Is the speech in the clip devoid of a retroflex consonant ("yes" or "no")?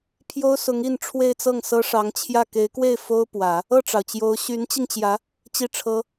no